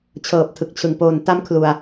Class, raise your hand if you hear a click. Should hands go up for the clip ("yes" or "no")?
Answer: no